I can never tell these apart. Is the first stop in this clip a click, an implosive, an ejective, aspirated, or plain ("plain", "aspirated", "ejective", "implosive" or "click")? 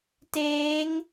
plain